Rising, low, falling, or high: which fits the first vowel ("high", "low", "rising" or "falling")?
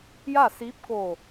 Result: falling